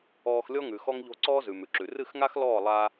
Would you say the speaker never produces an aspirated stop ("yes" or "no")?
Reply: yes